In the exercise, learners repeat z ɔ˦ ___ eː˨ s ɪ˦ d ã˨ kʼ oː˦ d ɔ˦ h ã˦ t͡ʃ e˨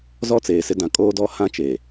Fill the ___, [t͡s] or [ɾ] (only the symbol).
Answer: t͡s